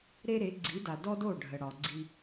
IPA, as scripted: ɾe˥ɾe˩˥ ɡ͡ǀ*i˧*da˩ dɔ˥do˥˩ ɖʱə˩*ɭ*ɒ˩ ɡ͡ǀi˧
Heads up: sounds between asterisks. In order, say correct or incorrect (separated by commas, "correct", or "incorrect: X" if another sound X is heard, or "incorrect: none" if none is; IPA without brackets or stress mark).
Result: incorrect: i˩˥, incorrect: ɽ